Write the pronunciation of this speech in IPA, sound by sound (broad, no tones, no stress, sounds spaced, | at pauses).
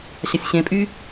ɕ a sʲ ɕ ẽ pʼ y